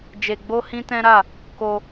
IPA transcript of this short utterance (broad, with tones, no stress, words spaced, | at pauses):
d͡ʒe˧ɡ͡bo˦hĩ˦tɛ̃˦ ɾa˦˨ | ko˧